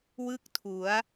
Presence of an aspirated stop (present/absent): present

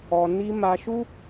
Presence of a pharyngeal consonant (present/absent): absent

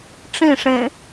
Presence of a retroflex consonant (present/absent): present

